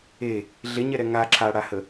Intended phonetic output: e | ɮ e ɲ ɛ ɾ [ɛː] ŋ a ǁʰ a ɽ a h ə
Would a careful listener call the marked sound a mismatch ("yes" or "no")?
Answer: yes